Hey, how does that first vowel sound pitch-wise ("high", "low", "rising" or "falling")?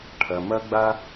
low